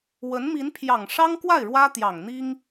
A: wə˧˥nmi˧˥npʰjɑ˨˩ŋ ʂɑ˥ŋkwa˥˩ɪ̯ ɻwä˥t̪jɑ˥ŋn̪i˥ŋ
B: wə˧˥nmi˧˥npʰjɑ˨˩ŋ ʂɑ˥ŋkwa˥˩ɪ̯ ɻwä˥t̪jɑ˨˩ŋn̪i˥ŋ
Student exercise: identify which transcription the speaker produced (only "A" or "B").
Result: B